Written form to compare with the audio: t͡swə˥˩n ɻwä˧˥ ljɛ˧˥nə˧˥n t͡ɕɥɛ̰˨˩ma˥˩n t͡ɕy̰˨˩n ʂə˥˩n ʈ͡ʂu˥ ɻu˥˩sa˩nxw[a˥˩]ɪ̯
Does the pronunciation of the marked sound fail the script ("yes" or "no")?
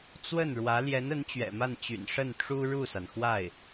no